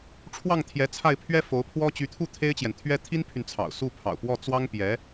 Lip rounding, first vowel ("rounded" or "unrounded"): unrounded